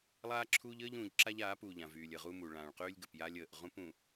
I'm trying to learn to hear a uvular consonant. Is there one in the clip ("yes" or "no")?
yes